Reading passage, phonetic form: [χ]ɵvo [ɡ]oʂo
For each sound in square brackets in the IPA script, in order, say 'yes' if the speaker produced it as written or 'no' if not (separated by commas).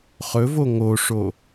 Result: yes, no